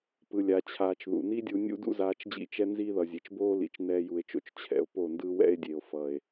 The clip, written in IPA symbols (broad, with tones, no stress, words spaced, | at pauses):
pɯ˧lʲa˧t͡ɕʰaː˧t͡ʃ ðṵ˨ni˦dʲu˧ nʲṵ˦dṵ˦zaː˧t͡ʃd͡ʑḭ˦˨ t͡ʃɛ˦nzi˦ðʌ˨ zʲe˨t͡ʃboː˦lḭ˨t͡ʃ nɛː˦ju˧e̯t͡ʃo̰˦t͡ʃ t͡ɕʰɛ̰˧o̯po˦˨ndɯ˦ wɛ̰˦e̯dʲe˨o̯ fʌ˨e̯